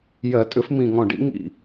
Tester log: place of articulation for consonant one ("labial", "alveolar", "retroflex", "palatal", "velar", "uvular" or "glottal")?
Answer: palatal